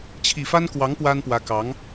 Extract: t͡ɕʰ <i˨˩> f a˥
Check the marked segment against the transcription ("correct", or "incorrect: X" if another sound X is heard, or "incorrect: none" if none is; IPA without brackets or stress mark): correct